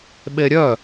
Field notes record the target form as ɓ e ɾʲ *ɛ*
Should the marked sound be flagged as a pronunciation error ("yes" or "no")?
yes